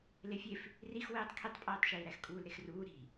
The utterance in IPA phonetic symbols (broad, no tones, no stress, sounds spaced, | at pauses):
l e fʲ e f | r i x w eː tˤ kʰ i tˤ pʼ æː tˤ ʃ iː ɾ æ x kʼ uː l ɾ e x r uː ɾ i̤